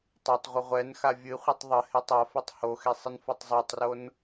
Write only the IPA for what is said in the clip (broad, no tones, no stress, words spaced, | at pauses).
tˤotˤʁʷə ʁʷɛnxa vʲɨ χʷɨtˤðˤəhetˤ afɨtˤ hoxe sˤɨnfɒtˤzˤatˤron